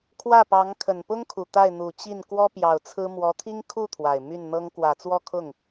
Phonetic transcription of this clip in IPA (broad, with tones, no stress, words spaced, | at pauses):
kʰwä˥˩pɑ˧˥ŋ kʰə˨˩npʊ˥ŋkʰu˨˩ t̪a˥˩ɪ̯n̪u˨˩t͡ɕi˥˩n kwɔ˥pjɑ˨˩ʊ̯t͡sʰɹ̩˥ mwɔ˧˥t̪ʰi˥ŋkʰu˥˩ t̪ʰwa˨˩ɪ̯my˥˩nn̪ɤ˥ŋ kwä˨˩t͡swɔ˥˧kʰʊ˥˩ŋ